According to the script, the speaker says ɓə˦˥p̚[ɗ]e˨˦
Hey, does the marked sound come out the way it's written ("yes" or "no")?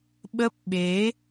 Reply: no